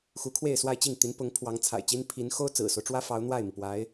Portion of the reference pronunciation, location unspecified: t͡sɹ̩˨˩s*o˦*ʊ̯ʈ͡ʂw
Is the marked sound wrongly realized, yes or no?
no